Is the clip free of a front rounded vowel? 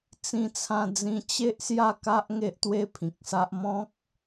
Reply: yes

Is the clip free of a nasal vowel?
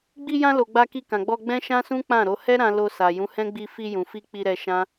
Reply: no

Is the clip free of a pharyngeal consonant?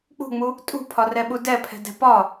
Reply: yes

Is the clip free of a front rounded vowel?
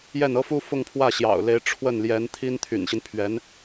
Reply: no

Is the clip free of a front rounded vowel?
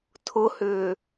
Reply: no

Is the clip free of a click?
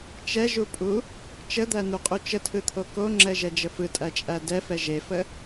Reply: no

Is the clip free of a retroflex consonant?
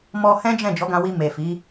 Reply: yes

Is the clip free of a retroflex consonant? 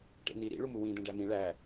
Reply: no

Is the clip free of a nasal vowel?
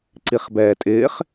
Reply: yes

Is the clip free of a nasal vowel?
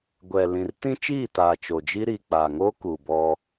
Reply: no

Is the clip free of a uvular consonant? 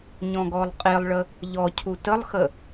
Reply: no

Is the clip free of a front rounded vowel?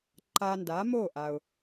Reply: yes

